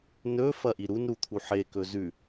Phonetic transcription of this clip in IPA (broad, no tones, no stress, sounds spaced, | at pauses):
n ɵ f ɐ ʔ i ɾ u n ɾ u t̪ʰ u ħ e k ɵ z ʉ